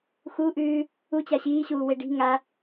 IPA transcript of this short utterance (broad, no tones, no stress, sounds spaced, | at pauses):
x u ʔ ʉː | u t͡ɕ a ɕ iː ɕ uː w e ɖ i̤ ŋ a